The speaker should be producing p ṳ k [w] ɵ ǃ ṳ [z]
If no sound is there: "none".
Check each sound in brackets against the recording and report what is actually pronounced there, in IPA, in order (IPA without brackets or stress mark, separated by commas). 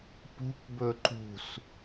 b, s